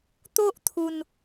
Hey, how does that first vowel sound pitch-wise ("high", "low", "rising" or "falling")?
high